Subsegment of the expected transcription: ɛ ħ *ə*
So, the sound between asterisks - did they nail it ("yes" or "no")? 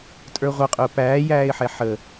yes